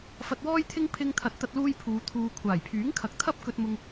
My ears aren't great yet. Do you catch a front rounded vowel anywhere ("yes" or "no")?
yes